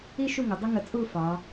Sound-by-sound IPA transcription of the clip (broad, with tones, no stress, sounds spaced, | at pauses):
i˥ ʃ u˥˧ ŋ ʊ˩˧ dˤ ə˥ ŋ ə˧˩ t͡sʼ u˥˧ f ɑ˩˧